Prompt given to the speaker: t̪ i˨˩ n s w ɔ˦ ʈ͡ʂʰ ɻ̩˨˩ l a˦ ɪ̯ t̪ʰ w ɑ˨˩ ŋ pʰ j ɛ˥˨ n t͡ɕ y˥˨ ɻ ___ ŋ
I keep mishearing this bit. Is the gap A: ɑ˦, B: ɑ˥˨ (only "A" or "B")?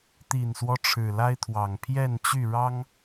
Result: A